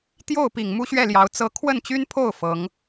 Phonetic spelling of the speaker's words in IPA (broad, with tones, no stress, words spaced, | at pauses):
t̪jo˥˩ʊ̯pi˨˩ŋ mu˥ɕɥɛ˥˩ljɑ˧˥ʊ̯ t͡sɤ˥ kʰwə˥˩nt͡ɕy˥npʰo˥˩ʊ̯ fɤ˧˥ŋ